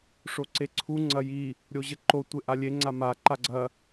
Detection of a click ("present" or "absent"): present